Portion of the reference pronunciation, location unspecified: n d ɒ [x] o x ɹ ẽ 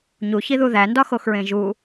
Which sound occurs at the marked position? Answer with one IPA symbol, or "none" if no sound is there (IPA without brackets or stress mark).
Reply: x